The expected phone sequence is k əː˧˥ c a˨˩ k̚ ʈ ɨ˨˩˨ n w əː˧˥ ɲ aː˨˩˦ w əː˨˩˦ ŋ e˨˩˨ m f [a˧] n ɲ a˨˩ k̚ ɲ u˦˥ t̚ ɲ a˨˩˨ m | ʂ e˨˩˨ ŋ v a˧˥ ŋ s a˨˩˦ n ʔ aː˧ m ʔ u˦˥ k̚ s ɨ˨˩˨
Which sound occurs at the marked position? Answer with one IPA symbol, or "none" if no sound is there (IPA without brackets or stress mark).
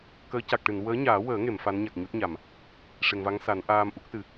a˧˥